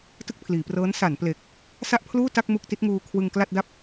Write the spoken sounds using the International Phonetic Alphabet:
t ɯ˥˩ k̚ pʰ l iː˩˦ p r ɤː˦˥ n s a˩˦ n p l e˨˩ k̚ | s a˥˩ ʔ pʰ l uː˥˩ t a˥˩ k̚ m u˥˩ k̚ t i˦˥ t̚ ŋ uː˧ kʰ w ɯ˧ ŋ k l a˥˩ t̚ d a˥˩ p̚

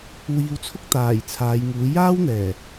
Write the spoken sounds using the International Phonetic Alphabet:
w iː˨˧ w t͡sʰ ʊ˥ k̚ t̪ aː˨˩ j t͡sʰ aː˨˧ j ŋ uː˨˥ j aː˥ w n̪ ɛː˨˩

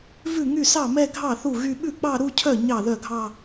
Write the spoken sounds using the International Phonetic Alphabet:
v ʉ˥˩ ŋ y˥˩ s ɑ˥˩ m ɛ˥˧ ɡʱ ɑ˥˩ θ u˥˩ ɣ y˥˧ ɓ ʉ˥˩ k͡p ɑ˥˧ ɾ u˥˧ cʰ œ˥˩ ɲ ɑ˥˩ ð œ˥˩ ɡʱ ɑ˥˧

